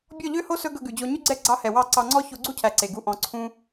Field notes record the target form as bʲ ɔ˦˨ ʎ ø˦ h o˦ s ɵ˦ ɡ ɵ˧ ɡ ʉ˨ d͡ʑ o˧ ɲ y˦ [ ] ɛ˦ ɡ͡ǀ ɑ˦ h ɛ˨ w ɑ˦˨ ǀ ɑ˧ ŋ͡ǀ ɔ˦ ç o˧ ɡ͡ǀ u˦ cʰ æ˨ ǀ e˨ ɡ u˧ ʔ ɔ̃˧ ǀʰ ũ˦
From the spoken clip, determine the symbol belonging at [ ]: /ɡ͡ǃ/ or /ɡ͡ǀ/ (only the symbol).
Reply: ɡ͡ǀ